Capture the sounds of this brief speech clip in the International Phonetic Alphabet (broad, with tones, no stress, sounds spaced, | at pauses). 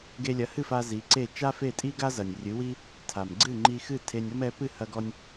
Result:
ɡ e˧ lʲ ɐ˩˥ h ɨ˥˩ f a˧ z i˩˥ ǀ e˥˩ t͡ʃ a˥ f e˥˩ tʼ i˥ ɡ a˥ z ɐ˩ nʲ rʲ ɨ˩˥ w i˥ | tʰ a˩ m ɡ͡ǀ ɨ˥˩ ŋ͡ǃ i˧ x ɨ˥˩ tʰ e˧ nʲ ɔ˥ m ɛ˩˥ p ɨ˥˩ h ɐ˧ ɡ ɔ˧ nʲ